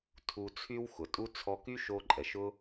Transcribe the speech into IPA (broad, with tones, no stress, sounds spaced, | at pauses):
tʰ u˧ t͡sʰ y˦ w x ʊ˨ tʼ u˦ t͡sʰ ɔ˧ k y˦ ʃ o˧ ǃʼ ɛ˨ ʃ ʊ˦